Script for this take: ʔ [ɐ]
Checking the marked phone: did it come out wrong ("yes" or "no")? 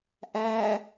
yes